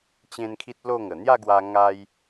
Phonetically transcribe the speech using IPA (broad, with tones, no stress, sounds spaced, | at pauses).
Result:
t͡ɕ ẽ˦ n kʰ i˦ t̚ l o˥˧ ŋ ə˨˩ n̪ j a˥˧ ɡ w a˧ ŋ a˧ j